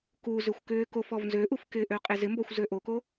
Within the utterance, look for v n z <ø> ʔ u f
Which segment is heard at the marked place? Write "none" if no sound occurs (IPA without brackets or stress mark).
ø